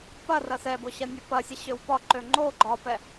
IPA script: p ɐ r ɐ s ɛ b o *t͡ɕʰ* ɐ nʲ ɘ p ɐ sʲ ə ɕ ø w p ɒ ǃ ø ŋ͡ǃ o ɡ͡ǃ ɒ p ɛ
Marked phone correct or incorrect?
incorrect